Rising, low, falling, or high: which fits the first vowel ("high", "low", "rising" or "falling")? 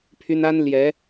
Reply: high